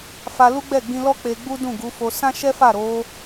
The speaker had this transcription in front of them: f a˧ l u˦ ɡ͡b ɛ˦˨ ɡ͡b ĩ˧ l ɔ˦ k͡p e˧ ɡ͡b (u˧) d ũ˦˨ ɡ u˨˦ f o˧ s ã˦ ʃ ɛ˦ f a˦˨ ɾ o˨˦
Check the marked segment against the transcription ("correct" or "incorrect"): incorrect